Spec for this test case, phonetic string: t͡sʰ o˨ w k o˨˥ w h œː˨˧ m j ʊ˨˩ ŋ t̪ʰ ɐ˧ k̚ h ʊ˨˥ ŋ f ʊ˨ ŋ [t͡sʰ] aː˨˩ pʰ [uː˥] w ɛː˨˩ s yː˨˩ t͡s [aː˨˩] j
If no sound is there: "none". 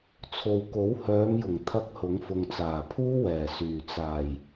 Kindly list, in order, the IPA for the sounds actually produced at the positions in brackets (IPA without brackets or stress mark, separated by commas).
t͡s, uː˥, aː˨˩